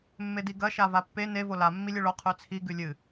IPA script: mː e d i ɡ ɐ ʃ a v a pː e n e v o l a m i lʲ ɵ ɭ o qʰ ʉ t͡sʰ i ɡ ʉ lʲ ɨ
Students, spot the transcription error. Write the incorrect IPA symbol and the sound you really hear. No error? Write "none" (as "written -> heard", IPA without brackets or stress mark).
m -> mː